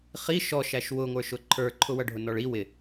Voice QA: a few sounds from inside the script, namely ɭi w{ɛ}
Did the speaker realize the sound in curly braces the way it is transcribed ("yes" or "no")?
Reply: no